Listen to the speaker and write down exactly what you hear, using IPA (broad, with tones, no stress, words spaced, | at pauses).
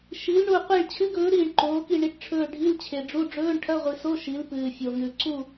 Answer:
ʃi˨˥lɳu˦˨ qʷi˦˨ɭt͡ɕʰɨ˧˥˧ɡɵː˨˥ ɾiː˦˨ɳǃoː˨˥ki˦˨ ɳi˨˥ʈʈ͡ʂʰɵː˦˨ ɖʱi˧˥˧lt͡ɕʰe˨ɖ͡ʐu˧˥˧ ɖ͡ʐɵː˧˥˧ɳʈʰɐ˧˥˧ʁʷi˨so˧˥˧ ʃi˨˥lpɨː˨fʲo˨ŋʉ˨ ǀu˦˨